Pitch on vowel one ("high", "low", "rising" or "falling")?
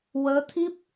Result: rising